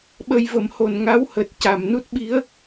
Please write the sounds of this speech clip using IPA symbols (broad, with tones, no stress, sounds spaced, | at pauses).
ɓ ə˧ j v ə˨˩˦ m h o˨˩ n ŋ a˧˥ w h əː˨˩ t̚ c a˨˩ m n u˦˥ t̚ ɓ i˧˥ ə̯